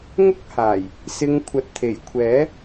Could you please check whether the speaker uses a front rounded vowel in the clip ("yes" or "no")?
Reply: no